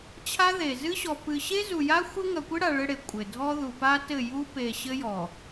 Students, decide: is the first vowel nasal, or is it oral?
oral